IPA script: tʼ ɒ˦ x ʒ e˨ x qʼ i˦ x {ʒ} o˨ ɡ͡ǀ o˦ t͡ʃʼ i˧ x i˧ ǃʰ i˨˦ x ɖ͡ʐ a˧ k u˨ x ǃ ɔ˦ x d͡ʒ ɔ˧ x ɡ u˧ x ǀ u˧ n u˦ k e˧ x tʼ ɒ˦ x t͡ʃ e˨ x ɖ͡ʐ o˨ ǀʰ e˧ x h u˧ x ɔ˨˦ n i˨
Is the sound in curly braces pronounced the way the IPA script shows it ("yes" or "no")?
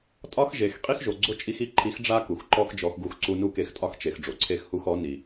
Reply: yes